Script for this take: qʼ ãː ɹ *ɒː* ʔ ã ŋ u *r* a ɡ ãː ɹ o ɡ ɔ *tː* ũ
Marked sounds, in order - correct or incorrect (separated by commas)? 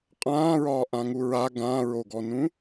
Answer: correct, incorrect, incorrect